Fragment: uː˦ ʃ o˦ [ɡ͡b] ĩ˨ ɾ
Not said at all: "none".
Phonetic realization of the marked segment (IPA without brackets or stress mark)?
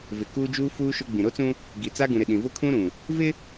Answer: ɡ͡b